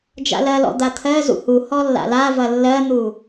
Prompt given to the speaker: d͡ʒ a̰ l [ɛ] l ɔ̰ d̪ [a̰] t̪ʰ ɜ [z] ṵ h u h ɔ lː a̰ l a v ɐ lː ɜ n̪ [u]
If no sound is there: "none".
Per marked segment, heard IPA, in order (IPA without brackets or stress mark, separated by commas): ɜ, a, z, u